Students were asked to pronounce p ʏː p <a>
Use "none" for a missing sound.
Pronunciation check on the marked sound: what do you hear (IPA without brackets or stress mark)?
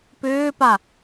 a